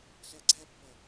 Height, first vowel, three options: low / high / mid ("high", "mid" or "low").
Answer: low